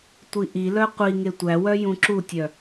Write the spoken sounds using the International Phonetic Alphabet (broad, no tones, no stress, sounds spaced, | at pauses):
tʷ i ʔ i l œ qʷ i ŋ e tʷ æ w œ j ũ ǁ u tʲ œ